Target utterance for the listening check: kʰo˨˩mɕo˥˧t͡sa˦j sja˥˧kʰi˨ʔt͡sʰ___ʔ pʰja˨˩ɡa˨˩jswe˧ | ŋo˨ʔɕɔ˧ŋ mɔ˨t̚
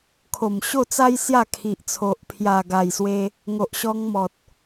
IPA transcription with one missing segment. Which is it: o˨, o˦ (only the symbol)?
o˨